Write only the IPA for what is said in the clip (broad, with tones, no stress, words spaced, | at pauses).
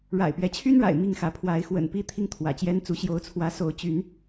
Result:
ɻa̰˨˩ɪ̯pɥɛ˨˦t͡ɕʰy˦nɻa̰˨˩ɪ̯ mi˥˨ŋxä˨˦ pʰwa˨˦ɪ̯xwə̰˨˩npi˦ t̪ʰi˦ŋt̪ʰwä̰˨˩t͡ɕjɛ˦nt͡su˨˦ ɕjo˨˦ʊ̯t͡sʰwä˨˦so˨˦ʊ̯ t͡ɕy˨˦n